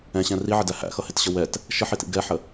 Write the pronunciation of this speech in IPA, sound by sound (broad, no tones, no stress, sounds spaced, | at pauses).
ɛ̃ ɕ ɛ̃ r i ʕ ɪ d æ h æ̰ x ʌ h ɪ t ɕ ə w ɛ t | ʃ ə ħ i t ḭ ɡ ɛ ħ ə